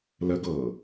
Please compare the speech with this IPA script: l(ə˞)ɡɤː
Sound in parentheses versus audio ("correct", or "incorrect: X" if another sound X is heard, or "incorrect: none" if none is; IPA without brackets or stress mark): incorrect: ə